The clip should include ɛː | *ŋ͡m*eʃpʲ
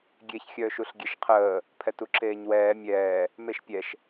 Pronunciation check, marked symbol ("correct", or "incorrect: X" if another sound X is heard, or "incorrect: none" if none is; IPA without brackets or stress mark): incorrect: m